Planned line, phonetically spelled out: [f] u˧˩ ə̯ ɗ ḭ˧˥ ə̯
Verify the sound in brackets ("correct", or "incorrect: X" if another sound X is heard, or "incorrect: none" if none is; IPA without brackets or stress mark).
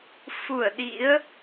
correct